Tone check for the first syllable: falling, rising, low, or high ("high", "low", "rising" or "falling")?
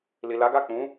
low